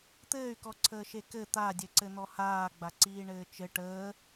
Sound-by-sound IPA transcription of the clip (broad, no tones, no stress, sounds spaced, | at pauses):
t̪ ɘː y̯ k ɔ ǀʰ əː ʃ e k ɘ t̪ a dʲ ɘ ǀ ɘ n̪ ɔ h aː ɡ͡b a ǀ iː ɳ ɘː t͡ʃ ɘ ʈ əː